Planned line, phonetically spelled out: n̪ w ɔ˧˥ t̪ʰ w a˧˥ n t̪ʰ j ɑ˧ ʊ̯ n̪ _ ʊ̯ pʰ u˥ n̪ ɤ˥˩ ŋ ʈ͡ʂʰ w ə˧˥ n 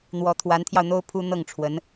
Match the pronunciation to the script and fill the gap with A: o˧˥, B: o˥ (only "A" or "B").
B